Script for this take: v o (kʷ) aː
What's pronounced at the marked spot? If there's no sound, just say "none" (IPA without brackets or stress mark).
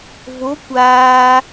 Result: kʷ